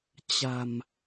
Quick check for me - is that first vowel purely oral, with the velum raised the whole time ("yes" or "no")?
yes